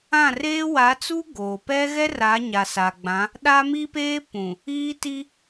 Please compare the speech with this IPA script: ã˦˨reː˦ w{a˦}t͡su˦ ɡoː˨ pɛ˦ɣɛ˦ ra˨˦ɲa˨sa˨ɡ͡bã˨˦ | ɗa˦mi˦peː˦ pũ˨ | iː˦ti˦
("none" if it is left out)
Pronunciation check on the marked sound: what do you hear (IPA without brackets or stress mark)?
a˨˦